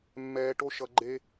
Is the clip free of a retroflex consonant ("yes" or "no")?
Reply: no